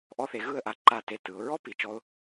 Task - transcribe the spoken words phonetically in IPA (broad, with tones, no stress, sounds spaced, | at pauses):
ʔ ɔ˧ θ e˩˧ ɣ ɯ˥˧ ə̯ ʔ a˧ ǃ a˧˩ t e˧˩ t ɯ˩˧ ʊ̯ ɹ ɔ˥ p i˩˧ t͡ʃ ɔ˧ ʊ̯